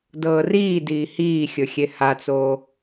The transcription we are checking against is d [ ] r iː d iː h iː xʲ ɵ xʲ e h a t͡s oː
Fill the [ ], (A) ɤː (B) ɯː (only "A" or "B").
A